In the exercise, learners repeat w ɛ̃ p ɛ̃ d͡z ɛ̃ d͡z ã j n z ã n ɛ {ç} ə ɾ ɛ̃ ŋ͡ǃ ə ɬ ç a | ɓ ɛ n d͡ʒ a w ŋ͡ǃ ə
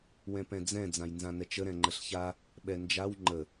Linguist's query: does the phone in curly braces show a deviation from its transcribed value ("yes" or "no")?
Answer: yes